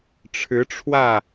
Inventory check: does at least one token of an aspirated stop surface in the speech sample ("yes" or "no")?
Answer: yes